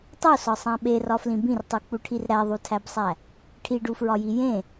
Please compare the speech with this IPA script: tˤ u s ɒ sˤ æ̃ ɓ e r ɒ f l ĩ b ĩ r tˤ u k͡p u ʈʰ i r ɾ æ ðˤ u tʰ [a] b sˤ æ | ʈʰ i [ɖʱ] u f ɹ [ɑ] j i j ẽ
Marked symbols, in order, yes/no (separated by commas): no, no, no